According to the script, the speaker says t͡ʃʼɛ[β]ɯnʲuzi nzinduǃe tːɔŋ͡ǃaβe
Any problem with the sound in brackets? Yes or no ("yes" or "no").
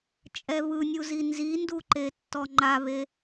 no